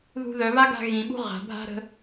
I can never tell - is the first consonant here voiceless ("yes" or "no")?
no